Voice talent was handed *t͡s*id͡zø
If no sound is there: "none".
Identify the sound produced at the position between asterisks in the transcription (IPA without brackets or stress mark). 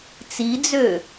t͡s